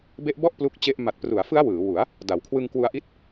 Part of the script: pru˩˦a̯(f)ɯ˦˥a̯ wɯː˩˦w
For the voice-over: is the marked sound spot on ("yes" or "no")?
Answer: yes